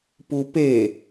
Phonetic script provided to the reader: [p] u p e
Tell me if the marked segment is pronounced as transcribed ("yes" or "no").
yes